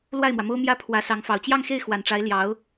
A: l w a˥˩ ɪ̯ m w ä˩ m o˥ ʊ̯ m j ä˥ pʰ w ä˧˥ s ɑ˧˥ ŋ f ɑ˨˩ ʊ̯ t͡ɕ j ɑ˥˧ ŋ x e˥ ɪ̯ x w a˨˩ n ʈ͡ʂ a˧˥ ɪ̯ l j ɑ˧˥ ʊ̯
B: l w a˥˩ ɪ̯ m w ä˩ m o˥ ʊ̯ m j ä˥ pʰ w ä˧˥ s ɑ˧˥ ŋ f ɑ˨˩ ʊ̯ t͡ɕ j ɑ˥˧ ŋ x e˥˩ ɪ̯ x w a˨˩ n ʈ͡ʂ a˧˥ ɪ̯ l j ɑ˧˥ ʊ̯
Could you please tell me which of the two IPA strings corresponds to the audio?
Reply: B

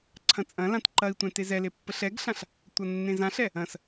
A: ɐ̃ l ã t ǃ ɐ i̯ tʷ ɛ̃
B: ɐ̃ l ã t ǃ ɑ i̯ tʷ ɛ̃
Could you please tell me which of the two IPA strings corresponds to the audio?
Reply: A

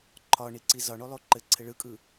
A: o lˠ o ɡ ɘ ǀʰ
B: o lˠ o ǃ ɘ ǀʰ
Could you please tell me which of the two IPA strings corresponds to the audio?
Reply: B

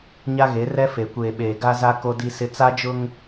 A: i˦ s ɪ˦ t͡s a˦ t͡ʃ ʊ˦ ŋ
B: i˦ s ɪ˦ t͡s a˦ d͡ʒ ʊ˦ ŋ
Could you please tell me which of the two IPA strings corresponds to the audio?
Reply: B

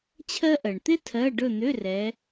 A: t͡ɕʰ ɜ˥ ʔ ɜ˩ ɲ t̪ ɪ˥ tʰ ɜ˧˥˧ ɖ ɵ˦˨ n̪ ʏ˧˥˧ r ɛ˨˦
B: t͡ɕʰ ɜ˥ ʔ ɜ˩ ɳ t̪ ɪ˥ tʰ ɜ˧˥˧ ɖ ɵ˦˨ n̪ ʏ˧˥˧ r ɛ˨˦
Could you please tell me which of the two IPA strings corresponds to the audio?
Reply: B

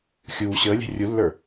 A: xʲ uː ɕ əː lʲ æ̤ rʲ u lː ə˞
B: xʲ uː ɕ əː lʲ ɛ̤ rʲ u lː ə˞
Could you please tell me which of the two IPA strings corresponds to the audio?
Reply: B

